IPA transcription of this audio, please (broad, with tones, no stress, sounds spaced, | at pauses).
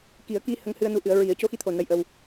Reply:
k i˨˩˦ ə̯ k i˧ h ə˧ ŋ h ɨ˧ ə̯ n u˧˥ ʔ ɨ˨˩˦ ə̯ ɹ i˨˩˦ ə̯ c o˧˥ x i˧ t̪ʰ o˨˩ n ə˧˥ j ʔ ə˧ w